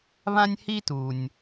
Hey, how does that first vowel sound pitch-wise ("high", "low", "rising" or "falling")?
high